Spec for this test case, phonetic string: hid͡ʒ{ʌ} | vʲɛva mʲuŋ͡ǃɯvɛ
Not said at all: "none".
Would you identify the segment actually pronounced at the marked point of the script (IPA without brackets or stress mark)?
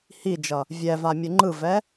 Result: ʌ